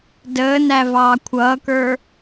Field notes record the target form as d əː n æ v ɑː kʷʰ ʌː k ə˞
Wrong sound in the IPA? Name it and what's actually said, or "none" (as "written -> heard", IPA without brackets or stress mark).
none